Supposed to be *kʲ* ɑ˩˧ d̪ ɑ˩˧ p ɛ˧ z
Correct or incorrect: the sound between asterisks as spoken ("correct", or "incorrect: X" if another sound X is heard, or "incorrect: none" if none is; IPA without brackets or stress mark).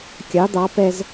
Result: correct